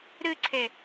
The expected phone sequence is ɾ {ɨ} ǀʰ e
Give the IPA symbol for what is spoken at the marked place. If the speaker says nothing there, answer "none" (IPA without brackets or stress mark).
ɨ